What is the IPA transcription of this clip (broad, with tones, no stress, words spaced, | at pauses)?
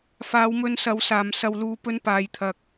faː˨˧wmɵ˧nsɐ˨˧w saː˨msɐ˧wluː˧ pɵ˧npaː˨jt̪ʰɐ˨k̚